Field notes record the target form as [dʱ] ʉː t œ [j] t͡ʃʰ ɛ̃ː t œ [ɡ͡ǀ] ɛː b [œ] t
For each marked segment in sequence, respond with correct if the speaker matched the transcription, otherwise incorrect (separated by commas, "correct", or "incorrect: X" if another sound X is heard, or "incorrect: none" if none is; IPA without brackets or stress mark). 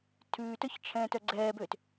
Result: incorrect: tʰ, incorrect: ç, correct, incorrect: ø